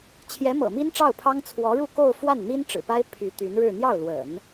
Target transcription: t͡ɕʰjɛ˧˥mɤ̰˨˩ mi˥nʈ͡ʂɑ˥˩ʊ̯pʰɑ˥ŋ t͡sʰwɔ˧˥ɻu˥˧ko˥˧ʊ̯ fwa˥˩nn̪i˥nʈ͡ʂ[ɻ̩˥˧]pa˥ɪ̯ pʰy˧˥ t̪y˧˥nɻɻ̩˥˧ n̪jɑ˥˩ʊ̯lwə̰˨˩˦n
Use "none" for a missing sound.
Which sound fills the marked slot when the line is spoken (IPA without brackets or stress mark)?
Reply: ɻ̩˨˩